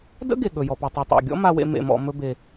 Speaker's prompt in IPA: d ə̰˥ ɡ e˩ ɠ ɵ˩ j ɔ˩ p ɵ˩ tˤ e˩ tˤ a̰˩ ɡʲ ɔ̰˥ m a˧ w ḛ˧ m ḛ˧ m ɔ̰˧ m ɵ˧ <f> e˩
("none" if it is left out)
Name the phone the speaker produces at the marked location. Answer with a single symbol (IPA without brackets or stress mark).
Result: b